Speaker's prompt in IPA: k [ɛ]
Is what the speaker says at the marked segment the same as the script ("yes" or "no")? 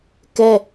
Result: yes